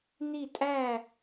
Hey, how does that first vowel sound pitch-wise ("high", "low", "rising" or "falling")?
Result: falling